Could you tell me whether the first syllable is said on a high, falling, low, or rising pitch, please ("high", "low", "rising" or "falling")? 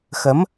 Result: rising